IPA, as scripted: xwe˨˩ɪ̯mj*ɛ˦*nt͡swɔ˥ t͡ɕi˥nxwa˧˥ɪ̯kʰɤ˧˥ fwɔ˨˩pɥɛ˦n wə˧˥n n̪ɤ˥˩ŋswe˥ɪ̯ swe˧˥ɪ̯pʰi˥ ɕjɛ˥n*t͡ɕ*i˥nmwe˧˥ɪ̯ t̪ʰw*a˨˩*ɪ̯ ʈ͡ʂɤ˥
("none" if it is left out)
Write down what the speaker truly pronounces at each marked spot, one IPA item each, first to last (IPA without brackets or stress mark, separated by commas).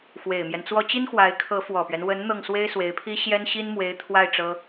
ɛ˦, ɕ, a˥˩